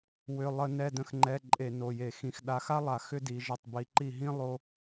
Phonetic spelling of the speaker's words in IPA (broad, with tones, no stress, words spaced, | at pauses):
wʏ˩˧˩ lˠə˧˩˧ nɛ˩˧˩də̃˨˦xŋ͡ǃɛ˩˧˩ ǃʼe˧˩˧no˩˧˩je˧˩˧xĩ˨˦x ɗa˨˦xa˥lˠa˧˩˧ xʏ˥di˨˦ʒə˦˨tˤ bi˨˦ǃi˦˨ɦĩ˥ lˠo˥